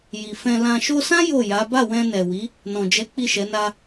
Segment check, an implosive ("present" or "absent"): absent